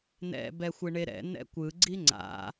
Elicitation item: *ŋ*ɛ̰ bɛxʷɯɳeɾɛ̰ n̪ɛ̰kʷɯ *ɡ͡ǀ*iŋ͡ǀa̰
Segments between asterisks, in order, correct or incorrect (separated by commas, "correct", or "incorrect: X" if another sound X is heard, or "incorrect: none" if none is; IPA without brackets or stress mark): incorrect: n̪, correct